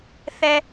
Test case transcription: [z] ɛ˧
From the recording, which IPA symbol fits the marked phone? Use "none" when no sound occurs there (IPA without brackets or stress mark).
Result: θ